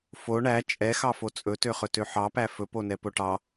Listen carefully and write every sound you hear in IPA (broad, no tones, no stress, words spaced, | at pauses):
fo ɳæ t͡ʃʼɛxɑfo t͡sʼɵtøχɵ tøħɑpæ fɵponɛ poʈɑ